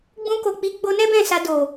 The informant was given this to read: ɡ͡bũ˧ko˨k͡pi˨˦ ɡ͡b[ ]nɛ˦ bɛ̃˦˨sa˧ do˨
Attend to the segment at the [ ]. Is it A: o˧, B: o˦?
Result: A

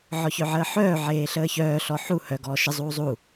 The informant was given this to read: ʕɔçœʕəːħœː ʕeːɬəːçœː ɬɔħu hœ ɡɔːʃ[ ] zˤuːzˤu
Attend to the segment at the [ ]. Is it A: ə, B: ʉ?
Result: A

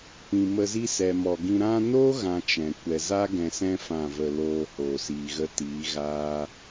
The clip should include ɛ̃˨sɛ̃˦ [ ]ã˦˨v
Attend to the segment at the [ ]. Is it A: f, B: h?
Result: A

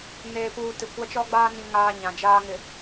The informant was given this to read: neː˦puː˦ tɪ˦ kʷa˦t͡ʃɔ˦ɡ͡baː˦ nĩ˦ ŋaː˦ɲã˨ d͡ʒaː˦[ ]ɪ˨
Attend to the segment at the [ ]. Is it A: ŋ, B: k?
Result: A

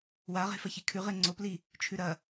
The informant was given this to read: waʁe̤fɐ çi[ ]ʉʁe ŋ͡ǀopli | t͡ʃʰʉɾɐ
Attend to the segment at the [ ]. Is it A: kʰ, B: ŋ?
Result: A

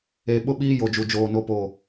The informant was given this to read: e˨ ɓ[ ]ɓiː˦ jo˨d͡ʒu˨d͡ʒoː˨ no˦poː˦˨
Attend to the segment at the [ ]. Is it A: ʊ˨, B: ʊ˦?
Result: B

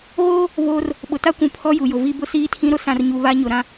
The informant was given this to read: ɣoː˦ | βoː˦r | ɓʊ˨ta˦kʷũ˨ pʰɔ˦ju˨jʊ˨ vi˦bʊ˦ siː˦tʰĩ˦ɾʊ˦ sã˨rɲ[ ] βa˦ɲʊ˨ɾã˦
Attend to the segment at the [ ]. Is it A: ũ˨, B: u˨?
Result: B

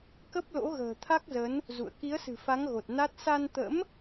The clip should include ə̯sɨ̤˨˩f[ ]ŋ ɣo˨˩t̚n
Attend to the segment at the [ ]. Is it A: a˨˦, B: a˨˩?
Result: A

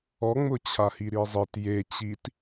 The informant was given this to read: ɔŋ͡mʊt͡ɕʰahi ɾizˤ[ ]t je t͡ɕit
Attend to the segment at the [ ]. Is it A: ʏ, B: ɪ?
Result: B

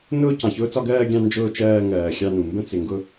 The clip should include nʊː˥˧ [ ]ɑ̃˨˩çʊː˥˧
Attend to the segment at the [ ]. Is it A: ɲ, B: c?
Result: B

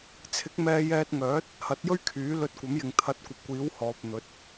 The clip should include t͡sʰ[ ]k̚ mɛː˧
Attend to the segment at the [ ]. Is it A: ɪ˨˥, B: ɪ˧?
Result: A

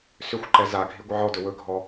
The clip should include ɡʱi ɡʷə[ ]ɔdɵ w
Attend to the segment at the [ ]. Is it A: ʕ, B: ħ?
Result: A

